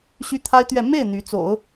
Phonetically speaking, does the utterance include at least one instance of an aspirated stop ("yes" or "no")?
yes